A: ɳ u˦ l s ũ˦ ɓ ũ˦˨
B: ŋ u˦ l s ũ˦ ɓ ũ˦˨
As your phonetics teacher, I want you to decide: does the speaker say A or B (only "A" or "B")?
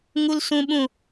B